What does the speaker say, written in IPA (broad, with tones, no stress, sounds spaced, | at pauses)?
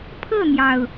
pʰ ɤ˥˨ n̪ j ɑ˩ ʊ̯